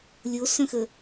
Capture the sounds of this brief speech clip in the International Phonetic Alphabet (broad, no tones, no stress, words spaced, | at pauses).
lʲosœ̃xə